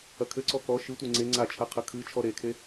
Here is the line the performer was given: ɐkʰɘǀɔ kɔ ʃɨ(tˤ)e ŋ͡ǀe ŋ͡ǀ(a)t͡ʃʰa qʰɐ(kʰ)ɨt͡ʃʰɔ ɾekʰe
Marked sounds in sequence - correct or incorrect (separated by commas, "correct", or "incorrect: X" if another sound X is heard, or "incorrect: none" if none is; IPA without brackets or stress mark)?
incorrect: tʷ, correct, correct